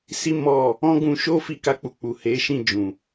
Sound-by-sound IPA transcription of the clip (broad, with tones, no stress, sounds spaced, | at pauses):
s i˦ m ɔ˦˨ | ɔ̃˦ ɡ ũ˧ ʃ o˦ f i˦ k a˦ k͡p u˧ k͡p u˨ h e˨˦ ʃ ĩ˦˨ d͡ʒ ũ˨